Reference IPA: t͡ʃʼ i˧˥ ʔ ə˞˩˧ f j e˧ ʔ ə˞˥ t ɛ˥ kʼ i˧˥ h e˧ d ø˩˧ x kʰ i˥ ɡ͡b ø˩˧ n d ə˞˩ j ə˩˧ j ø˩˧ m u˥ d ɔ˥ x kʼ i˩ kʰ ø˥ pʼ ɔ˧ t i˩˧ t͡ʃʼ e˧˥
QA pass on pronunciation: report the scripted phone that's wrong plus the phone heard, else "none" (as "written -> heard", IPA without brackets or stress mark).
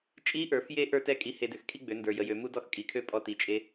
none